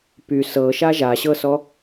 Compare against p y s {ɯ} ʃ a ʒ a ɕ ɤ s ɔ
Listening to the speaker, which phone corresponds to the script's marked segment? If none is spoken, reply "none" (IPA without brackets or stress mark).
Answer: ɤ